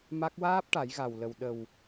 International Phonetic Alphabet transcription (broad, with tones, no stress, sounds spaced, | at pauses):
m a˦˥ k̚ w aː˦˥ p̚ ʈ a˨˩˦ j ɣ a˨˩ w l ə˨˩ w ɗ ə˨˩ w